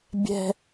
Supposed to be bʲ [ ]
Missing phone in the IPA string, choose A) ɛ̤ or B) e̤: A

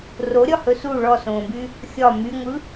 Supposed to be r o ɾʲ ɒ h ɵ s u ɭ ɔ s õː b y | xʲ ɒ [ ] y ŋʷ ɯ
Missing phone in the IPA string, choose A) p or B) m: B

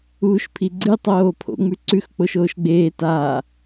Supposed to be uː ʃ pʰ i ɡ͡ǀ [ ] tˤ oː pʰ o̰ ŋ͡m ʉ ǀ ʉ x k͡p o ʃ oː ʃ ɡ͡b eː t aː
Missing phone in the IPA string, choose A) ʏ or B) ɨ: B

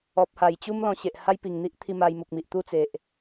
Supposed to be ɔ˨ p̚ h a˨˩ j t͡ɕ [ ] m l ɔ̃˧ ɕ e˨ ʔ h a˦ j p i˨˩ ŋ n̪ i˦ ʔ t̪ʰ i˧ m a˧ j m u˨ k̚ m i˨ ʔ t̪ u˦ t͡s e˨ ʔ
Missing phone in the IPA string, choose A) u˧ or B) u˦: B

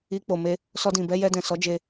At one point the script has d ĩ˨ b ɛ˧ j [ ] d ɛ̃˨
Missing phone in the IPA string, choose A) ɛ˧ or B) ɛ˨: A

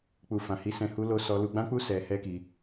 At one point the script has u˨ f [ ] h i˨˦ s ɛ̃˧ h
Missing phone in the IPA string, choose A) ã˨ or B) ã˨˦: A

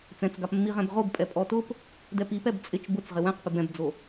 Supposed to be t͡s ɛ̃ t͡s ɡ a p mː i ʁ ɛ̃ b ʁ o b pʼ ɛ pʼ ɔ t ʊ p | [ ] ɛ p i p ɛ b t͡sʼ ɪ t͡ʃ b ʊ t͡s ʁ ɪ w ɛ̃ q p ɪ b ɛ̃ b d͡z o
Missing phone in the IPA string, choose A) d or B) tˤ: A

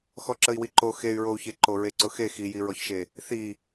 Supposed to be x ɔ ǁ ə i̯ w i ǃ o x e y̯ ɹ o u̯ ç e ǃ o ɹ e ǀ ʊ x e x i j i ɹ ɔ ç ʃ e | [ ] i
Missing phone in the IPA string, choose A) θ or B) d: A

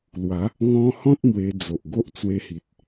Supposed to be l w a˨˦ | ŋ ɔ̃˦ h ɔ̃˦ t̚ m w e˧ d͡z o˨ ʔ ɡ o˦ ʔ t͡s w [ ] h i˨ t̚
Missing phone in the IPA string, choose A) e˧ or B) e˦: A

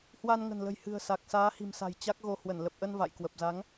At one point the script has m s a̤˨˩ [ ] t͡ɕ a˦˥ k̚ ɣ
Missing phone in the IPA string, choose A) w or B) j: B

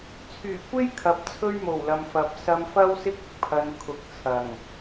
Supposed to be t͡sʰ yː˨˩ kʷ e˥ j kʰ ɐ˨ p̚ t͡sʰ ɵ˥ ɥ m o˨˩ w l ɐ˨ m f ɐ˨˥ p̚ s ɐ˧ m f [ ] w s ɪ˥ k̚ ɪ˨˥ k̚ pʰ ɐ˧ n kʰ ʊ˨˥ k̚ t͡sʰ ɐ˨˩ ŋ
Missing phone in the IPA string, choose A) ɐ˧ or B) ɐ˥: B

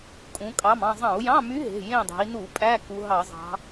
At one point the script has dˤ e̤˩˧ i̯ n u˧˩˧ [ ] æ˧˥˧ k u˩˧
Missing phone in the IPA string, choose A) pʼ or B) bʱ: A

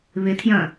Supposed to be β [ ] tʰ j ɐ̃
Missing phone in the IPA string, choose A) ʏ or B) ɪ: B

